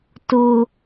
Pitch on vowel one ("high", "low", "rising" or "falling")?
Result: high